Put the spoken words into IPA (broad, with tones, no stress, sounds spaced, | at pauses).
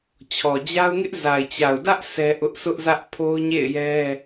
t͡ɕʰ ɔ˨ d͡ʑ a˦ ʊ̯ ŋ ɪ˦ ʔ z a˨ ɪ̯ t͡ɕ a˨ ʊ̯ d ä˦ ʔ s ɛ˦ ʔ ʊ˦ ʔ s ʊ˦ ʔ z ä˦ ʔ pʰ o˦ ʊ̯ ɲ ḛ˦˨ ɪ̯ j ɛ˦